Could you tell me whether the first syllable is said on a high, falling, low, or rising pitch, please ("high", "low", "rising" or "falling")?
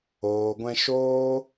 low